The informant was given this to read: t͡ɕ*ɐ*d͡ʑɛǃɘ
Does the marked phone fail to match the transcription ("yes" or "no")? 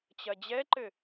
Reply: no